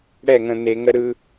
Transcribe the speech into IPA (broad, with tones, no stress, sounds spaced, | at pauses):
ɽ ɛ˦˨ ŋ ə̃˨ n̪ e˨ ŋ ə˦ ɾ ɯ˦